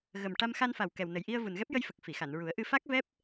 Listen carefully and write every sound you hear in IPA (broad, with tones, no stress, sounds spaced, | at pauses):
ɣ ə˨˩ m ʈ a˧ m x a˧ n f a˨˩ w k ɛ˨˩ w n ə˨˩ j ʔ i˧ ə̯ v u˨˩ n ɣ ɛ˦˥ p̚ j ə˧ j f ə˨˩ k̚ f i˨˩˨ x a˨˩˨ n ɹ u˨˩˦ ə̯ ʔ ɨ˧ f a˦˥ k̚ v ɛ˦˥ p̚